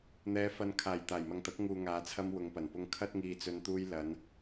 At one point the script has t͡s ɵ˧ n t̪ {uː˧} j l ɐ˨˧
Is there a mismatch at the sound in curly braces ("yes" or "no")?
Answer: no